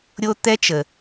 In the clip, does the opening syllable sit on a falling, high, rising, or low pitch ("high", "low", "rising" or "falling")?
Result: high